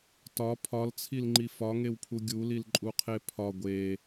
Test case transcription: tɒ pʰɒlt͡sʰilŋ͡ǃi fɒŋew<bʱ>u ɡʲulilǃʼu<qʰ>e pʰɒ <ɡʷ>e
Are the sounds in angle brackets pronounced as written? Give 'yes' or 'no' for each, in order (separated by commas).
no, yes, yes